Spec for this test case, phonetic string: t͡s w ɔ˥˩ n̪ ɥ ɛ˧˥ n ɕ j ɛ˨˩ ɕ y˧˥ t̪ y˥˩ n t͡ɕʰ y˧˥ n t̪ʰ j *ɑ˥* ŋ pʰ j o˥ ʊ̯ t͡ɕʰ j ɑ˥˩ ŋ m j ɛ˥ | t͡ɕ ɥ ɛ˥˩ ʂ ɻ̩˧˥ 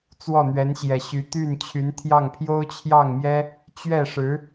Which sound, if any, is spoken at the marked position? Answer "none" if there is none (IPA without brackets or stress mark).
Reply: ɑ˥˩